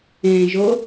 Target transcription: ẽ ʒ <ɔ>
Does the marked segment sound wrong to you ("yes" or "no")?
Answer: yes